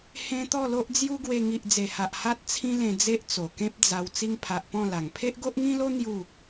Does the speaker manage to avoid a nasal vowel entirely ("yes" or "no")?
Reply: no